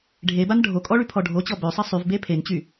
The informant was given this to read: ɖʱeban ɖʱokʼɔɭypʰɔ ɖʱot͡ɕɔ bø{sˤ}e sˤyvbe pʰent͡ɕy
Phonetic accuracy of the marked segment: correct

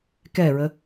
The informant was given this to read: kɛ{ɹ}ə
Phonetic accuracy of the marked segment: correct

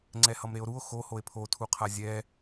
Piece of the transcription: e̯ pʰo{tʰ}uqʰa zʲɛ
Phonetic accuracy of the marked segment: correct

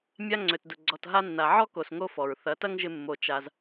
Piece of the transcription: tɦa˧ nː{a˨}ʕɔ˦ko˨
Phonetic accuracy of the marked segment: correct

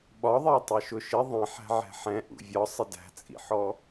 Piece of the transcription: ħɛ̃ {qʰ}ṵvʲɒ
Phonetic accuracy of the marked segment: incorrect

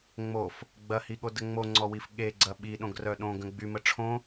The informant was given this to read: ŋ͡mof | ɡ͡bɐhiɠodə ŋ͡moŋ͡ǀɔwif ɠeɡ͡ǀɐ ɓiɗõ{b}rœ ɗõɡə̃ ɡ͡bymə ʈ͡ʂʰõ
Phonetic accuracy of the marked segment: incorrect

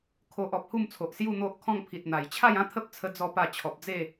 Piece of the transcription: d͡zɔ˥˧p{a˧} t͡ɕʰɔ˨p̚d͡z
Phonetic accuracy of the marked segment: incorrect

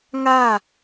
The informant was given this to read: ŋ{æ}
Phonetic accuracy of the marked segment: incorrect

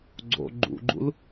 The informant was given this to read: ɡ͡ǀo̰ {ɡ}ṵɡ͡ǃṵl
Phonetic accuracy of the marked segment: incorrect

